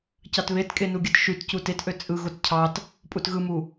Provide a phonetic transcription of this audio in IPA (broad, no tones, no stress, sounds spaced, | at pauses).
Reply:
c ɑ t β e t kʼ e n u ɡʲ ɯ t ʃ y t c u t e t ʔ ø t͡sʼ ɯ ɣ o t cʰ ɑ t | pʼ u t ɣ ɯ m u